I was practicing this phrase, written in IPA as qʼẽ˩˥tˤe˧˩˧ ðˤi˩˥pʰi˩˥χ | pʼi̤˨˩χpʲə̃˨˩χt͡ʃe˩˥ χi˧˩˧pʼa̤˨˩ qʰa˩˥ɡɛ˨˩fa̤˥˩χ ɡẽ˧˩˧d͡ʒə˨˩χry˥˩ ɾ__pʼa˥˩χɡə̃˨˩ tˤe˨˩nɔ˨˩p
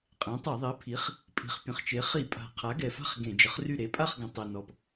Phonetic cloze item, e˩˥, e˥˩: e˩˥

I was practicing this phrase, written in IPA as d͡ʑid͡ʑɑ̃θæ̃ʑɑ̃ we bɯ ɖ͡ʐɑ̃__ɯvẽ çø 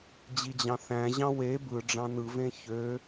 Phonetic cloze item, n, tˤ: n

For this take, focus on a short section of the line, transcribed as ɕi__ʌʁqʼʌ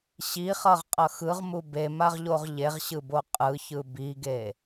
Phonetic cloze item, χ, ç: χ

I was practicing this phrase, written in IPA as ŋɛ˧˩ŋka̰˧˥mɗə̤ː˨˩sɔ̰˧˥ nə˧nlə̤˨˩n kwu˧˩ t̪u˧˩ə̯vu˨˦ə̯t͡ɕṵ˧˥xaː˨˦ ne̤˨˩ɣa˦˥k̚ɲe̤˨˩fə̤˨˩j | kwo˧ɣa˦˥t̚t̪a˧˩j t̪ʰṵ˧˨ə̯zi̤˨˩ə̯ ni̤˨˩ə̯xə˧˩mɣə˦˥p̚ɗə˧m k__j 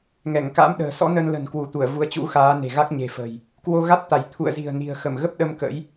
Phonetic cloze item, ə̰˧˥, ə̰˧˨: ə̰˧˥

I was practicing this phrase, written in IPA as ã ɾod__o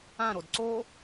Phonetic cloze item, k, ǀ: ǀ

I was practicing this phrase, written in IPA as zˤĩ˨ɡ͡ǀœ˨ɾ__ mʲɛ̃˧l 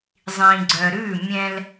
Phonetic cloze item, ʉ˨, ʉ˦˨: ʉ˦˨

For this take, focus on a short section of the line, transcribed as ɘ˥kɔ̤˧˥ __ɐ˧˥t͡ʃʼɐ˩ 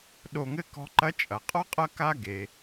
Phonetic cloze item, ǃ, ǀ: ǃ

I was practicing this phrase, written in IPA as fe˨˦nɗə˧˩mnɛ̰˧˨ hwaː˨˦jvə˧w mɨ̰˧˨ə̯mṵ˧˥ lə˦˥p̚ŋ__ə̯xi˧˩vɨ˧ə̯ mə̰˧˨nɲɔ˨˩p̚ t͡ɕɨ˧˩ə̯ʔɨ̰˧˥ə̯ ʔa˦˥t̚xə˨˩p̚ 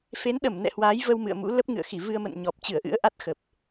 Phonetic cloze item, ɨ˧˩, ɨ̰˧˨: ɨ̰˧˨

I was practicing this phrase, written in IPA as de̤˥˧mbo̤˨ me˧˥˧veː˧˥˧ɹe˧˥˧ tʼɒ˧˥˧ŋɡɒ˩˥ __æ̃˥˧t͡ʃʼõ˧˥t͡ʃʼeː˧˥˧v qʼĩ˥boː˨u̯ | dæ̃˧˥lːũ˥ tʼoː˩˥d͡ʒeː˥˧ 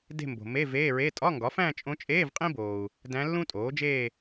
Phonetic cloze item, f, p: f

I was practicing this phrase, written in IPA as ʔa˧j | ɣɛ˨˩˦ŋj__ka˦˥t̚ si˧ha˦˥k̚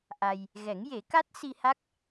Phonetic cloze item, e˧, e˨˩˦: e˨˩˦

